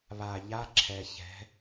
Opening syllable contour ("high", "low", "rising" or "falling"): low